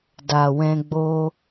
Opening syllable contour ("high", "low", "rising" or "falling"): low